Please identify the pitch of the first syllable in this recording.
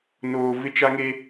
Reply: low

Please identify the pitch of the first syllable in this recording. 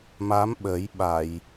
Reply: rising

